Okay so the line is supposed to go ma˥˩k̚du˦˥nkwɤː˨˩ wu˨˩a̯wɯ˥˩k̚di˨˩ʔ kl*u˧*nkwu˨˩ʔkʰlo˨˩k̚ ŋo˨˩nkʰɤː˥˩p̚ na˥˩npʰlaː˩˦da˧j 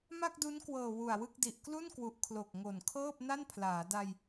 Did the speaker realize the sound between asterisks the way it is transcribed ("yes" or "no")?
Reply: no